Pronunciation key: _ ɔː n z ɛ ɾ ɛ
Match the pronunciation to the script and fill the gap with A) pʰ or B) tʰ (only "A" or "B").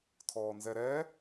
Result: B